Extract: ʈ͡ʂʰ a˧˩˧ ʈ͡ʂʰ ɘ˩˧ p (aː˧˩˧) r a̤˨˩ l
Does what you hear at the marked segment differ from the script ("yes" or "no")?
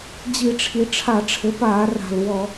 no